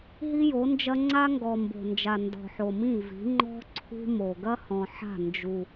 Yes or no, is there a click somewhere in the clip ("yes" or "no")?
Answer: yes